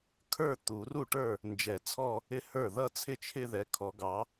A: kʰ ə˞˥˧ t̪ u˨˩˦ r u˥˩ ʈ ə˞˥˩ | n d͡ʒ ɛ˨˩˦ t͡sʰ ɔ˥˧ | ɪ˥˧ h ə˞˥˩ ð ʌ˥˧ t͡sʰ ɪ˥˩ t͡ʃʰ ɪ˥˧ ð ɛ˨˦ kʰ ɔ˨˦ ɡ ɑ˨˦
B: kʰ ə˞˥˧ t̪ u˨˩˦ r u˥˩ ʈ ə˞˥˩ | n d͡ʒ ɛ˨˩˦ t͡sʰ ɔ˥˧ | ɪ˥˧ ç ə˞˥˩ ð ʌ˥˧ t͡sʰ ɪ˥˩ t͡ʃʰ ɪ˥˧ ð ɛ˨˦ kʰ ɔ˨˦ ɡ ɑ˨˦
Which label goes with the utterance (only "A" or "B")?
A